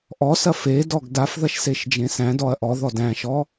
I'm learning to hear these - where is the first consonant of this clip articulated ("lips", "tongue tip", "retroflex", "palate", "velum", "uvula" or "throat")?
throat